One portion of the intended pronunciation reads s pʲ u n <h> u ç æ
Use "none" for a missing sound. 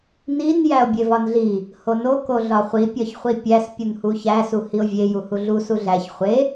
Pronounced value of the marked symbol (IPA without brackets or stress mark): h